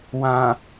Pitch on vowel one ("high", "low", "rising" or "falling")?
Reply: low